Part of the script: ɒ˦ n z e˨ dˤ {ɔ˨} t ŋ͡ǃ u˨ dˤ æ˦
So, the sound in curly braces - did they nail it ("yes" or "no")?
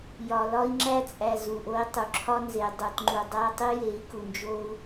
no